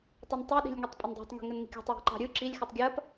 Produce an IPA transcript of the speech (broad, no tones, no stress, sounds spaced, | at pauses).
tˤ ɯ n tˤ e ɗ i̤ lʲ ŋ e tˤ pʼ ɘ n dˤ ɑ̤ tˤ ŋ i̤ ŋ ɘ n ŋ i̤ kʲ ɑ̤ tˤ w i̤ ǃ ɑ̤ ɾʲ ɯ ǁ i lʲ x e tˤ ɡʲ ɐ p